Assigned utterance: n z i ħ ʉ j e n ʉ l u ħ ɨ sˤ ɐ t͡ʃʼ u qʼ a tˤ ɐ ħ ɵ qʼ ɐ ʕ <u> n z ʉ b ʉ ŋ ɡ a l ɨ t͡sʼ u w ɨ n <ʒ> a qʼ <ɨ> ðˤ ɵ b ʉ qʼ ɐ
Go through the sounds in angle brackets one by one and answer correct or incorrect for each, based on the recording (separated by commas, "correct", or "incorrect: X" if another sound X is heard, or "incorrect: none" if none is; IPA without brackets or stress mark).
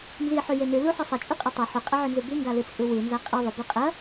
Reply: incorrect: ʉ, incorrect: z, incorrect: i